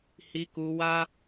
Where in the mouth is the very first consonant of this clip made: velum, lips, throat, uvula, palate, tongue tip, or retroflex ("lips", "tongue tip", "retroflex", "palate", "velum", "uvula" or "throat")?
throat